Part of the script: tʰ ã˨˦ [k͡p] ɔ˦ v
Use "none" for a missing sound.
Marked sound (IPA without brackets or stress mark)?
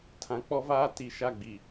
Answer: k͡p